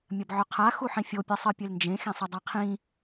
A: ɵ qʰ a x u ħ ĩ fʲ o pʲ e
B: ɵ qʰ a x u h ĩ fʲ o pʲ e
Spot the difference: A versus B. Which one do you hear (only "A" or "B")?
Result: A